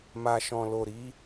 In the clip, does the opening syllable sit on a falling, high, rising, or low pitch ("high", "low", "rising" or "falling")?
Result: low